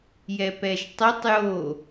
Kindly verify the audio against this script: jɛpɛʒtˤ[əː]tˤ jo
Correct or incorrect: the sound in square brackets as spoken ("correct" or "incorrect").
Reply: incorrect